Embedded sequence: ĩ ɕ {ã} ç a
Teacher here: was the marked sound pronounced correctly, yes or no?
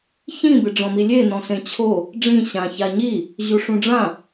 yes